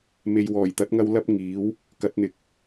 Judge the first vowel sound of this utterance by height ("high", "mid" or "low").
mid